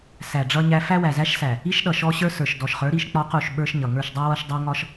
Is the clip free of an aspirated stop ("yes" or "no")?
yes